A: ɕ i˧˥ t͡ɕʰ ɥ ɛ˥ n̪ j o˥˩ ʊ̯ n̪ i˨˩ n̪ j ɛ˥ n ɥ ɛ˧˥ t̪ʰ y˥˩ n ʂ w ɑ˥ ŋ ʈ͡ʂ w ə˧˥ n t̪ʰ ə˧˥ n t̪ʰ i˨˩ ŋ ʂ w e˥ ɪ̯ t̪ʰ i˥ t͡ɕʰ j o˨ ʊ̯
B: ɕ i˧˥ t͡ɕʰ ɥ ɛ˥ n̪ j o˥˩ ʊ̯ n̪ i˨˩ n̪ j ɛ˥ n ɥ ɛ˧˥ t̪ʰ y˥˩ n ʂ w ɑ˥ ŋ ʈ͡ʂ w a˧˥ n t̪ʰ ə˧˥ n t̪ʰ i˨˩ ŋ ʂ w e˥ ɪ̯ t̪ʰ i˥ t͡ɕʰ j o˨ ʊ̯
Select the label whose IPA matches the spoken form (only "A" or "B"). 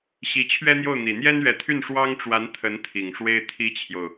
B